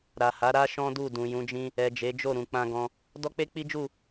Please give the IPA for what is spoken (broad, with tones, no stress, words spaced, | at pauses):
ɾa˨ha˨˦ɾa˦ ʃɔ̃˦du˦˨ dũ˨jũ˨˦d͡ʒĩ˦ | ɛ˨d͡ʒe˨˦d͡ʒo˦˨ɾũ˨ k͡pã˧ɡɔ̃˧ | dɔ˦k͡pe˦k͡pi˦d͡ʒu˦˨